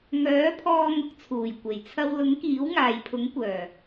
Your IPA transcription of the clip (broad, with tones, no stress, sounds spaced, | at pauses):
ŋ œː˨˥ pʰ ɔː˧ ŋ ʊ˨ k̚ t͡sʰ uː˨˩ j kʷ e˨˩ j t͡sʰ ɐ˧ w l ʊ˨˥ ŋ k iː˨˥ w ŋ aː˨ j pʰ ʊ˨˥ ŋ kʷ œː˨˩